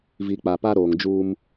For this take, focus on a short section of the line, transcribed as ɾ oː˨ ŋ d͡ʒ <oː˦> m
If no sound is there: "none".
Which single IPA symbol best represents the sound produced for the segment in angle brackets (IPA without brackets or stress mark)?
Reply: uː˦